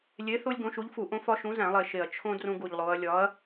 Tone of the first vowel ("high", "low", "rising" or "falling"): rising